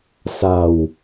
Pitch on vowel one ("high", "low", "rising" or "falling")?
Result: low